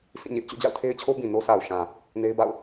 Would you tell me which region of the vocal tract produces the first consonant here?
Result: tongue tip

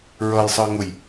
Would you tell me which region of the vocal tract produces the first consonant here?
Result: tongue tip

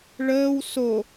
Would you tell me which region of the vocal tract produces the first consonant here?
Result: retroflex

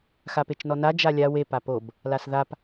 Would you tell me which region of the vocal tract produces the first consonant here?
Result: velum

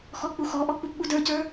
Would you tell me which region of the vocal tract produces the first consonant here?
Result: velum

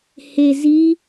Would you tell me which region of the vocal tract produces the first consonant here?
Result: throat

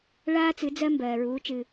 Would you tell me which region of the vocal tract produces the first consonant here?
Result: retroflex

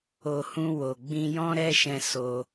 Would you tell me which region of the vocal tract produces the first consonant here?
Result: throat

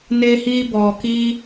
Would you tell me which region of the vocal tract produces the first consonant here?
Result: tongue tip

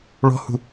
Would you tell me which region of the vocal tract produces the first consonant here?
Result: retroflex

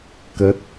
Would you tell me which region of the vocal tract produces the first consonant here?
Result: velum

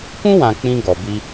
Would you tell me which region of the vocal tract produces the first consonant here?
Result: velum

